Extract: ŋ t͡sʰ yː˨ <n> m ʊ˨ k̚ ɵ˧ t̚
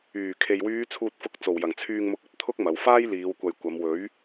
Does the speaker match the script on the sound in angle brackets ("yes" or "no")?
no